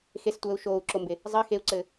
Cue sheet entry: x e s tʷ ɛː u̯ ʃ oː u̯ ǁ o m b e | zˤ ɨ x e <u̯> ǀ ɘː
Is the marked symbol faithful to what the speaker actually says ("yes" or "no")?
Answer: yes